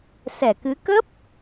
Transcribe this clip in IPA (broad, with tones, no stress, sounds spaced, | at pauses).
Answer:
s ɛ˧˩ k ɨ˨˦ k ə˦˥ p̚